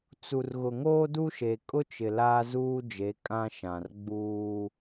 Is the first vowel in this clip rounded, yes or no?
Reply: yes